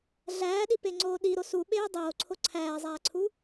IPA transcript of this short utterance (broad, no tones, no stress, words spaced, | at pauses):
ɮæːɗipeŋ͡ǀoː ɗiɾo suɓeː dˤoːǀʰo ǀʰæːzˤæːǀʰu